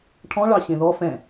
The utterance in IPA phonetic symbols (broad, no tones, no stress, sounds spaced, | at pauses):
ʈʰ ɔ̃ ɭ ɑ ɕ ẽ ð ɔ f ɛ̃